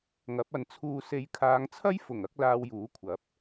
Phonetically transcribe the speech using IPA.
ŋ ɐ˨˥ p̚ ɐ˨˧ n t͡sʰ uː˧ s e˨˧ j kʰ aː˨˧ ŋ t͡sʰ ɐ˥ j f ʊ˨˩ ŋ ɐ˧ k̚ l aː˧ w j uː˨˥ kʷʰ ɐ˨˥ p̚

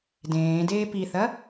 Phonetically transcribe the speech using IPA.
d ẽː d eː p i θ ɐ

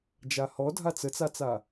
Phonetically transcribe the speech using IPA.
d͡ʒ a h ɔ dʱ a t͡s ə t͡s a t͡s a

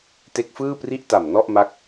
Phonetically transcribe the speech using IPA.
t e˦˥ k̚ f ɯː˥˩ p r i˥˩ ʔ t a˨˩ m n ɔ˥˩ ʔ m a˦˥ k̚

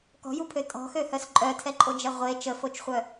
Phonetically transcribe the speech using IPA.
k ɔ̤ j u pʰ ø tʼ ɔ̤ x ø h œ s ǃʼ œ tʰ ɛ ǃʼ o d͡ʒ ɛ ʁʷ e t͡ʃ ə f o t͡ʃ χʷ œ

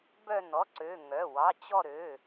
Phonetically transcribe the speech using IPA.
b œ˦˨ n ɔ˩˧˩ ǀ ø˩˧˩ ŋ œ˩˧˩ w ɑ˩˧˩ t͡ɕ ɔ˦˨ ɾ ø˩˧˩

